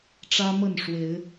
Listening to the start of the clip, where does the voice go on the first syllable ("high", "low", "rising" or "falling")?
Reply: high